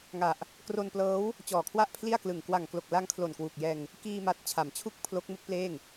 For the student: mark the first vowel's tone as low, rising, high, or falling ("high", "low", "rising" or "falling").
low